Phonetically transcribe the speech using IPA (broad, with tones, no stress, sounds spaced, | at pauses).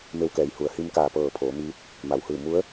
m e˧ w k ɛː˩˧ j h u˩ ə̯ h i˧ m k aː˧˩ p ɤː˧˩ pʰ oː˩˧ m iː˧˥ t̚ | m a˩ w h ɯː˧˩ m u˧˥ ə̯